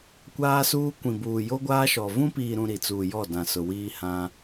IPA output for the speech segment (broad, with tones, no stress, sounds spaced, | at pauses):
kʷ aː˦ s uː˦ kʷ ĩ˨ b uː˨ j o˦ ɡʷ aː˦ ʃ ɔ˨ v ũ˦ p iː˨ ɾ ũ˨ ɾ i˨ t͡s uː˨ j ɔ˦˨ d ã˨ s ʊ˨ w iː˦ h ã˦